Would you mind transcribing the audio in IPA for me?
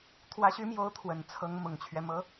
t̪ʰwä˧˥ɕy˧˥mjo˧˥ʊ̯ t̪ʰwə˨˩nt͡sʰɤ˧˥ŋmʊ˨˩ŋt͡ɕʰɥɛ˦ mɤ˧˥

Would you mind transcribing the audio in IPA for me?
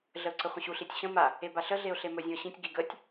ɮəʊ̯ǀəχʷə̃ɕu ɬitʲɕə̃ ma | ebaɬə ɮeʊ̯ɬemɵ zʲũə̯ɕĩtʲ ɡiɡətʲ

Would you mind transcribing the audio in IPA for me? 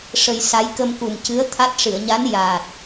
ʂə˧j sa˧˥j kə˧mku˨˩mcɨ˧˥ə̯ t̪ʰa˦˥t̚ ʂɨ˨˩˨ə̯ɲa˧˥n ja˨˩t̚

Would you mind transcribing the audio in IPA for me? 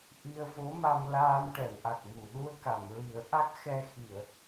ʔi˧ə̯vo˧˥ma˧m laː˧mʈɛ˨˩˨wʔa˨˩k̚mu˨˩˨ ɗu˧ə̯ka˨˩˨mɹi˨˩˦ə̯ʔa˦˥k̚ xɛ˧xi˨˩˨ə̯

